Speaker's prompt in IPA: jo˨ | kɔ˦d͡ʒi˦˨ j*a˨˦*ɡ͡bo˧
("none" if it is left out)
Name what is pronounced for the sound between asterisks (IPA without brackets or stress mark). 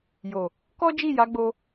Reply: a˨˦